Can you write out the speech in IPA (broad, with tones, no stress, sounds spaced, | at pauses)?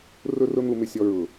r ʊ˦ r ʊ˦ n̪ u˧ m ɪ˧ sʲ ɔ˧ ɹ ʊ˨